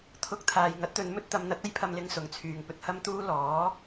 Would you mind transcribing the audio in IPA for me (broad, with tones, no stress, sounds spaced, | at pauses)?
t̪ʰ ʊ˧ k̚ t̪ʰ aː˨ j ŋ ɐ˨˥ t̚ t̪ ɵ˨˧ n m ɵ˥ t̚ t̪ ɐ˨˧ m n̪ ɐ˨˥ t̚ ɐ˥ j pʰ ɐ˧ m l ɪ˧ ŋ s ʊ˨˩ ŋ t͡sʰ yː˨ ŋ p ɵ˧ t̚ h ɐ˥ m t̪ uː˥ l ɔː˨˥